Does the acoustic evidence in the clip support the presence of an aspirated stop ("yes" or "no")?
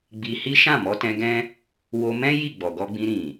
no